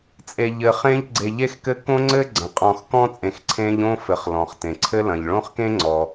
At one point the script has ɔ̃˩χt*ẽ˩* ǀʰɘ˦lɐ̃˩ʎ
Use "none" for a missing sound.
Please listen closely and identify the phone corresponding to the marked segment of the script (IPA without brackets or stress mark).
ẽ˩